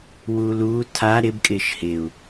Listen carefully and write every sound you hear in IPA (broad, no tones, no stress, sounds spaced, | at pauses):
w uː l uː tʰ a ɾ ɪ b kʼ ɪː ʃ h ɪ u̯